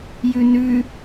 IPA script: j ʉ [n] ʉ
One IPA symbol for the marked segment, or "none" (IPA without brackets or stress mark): n